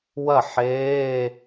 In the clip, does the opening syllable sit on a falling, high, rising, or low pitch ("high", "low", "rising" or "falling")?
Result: falling